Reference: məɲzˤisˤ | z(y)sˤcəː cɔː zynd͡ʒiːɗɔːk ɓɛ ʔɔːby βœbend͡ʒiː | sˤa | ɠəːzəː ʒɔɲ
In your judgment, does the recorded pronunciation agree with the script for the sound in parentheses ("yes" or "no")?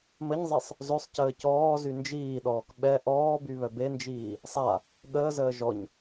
no